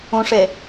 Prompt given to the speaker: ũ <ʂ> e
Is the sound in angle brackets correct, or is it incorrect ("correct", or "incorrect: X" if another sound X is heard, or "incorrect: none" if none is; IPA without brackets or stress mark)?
correct